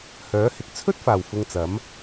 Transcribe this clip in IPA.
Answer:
h œː˨˥ h ɪ˨ k̚ t͡sʰ ɵ˥ t̚ f aː˨˩ w f ʊ˧ ŋ t͡s ɐ˨˥ m

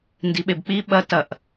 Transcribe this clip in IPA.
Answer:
n d i ɓ e b k͡p i ɓ ɐ t ɐ ʔ

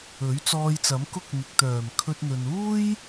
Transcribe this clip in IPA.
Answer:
ɵ˨˥ ɥ t͡s ɔː˧ j t͡s ɐ˨˥ m k ʊ˧ k̚ n̪ ɪ˨ k̚ t̪ œː˨˩ m kʰ ɵ˧ t̚ n̪ ɵ˨ n uː˥ j

